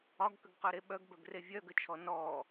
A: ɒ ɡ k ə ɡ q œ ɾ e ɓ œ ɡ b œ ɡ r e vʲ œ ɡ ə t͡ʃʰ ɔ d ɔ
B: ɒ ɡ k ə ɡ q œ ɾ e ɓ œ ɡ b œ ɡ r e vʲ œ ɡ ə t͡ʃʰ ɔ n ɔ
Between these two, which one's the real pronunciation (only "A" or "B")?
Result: B